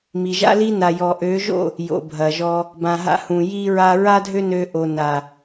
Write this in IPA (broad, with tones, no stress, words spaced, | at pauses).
mi˨ʒa̰˦li˦ na˨jɔ˨ʔø˨˦ʒo̰˦˨ | jo̰˨bʱɐ˨ʒɔ˧ | bã˨ɦa̰˧ hũ˨ji˧ɹa˧ ɹa˦dʱø˦nø˧ ʔo˨na˨